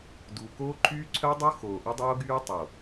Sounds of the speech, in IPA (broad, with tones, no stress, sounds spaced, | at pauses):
d u˨ k oː˦ ǃʰ yː˦ ǀʰ œ˦ dˤ o˦ x oː˨ ʔ ə˦ dˤ oː˦ ɡ yː˦ tˤ o˨